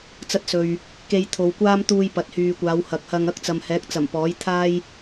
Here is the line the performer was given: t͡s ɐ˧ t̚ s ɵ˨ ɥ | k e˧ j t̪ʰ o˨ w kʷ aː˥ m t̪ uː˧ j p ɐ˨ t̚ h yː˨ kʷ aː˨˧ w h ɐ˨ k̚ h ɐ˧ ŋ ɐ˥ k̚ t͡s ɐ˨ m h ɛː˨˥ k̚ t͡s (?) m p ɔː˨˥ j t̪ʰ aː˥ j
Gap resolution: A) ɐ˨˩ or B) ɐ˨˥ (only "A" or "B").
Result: A